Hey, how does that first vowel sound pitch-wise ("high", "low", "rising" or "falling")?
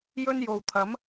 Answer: high